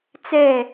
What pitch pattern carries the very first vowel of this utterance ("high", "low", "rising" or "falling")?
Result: falling